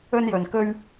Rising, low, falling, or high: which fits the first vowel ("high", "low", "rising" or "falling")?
high